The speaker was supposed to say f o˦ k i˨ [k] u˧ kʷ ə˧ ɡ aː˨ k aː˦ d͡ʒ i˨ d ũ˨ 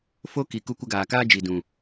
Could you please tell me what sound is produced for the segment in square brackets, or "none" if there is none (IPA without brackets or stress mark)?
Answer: k